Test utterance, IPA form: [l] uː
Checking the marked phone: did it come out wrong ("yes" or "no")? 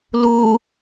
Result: no